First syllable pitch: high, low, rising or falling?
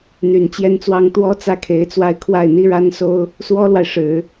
low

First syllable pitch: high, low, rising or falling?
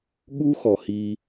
high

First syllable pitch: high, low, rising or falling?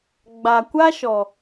low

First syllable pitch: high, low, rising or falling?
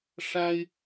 high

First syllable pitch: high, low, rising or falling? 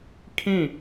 falling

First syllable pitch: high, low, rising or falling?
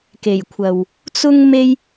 low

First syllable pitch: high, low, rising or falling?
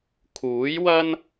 rising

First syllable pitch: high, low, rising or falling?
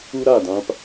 high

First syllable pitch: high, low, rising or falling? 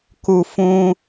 low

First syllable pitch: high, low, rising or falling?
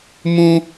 high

